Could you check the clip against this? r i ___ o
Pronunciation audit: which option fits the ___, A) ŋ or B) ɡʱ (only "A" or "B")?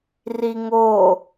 A